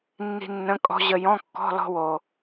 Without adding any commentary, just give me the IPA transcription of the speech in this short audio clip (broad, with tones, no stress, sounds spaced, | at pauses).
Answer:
nː i̤˧ nː ə̃˧˥˧ kʼ ɔ̤˥ ʑ ə˧ j ɔ̃˧˥˧ kː ɔ̤˧˥˧ l ɔ̤˧ w o˩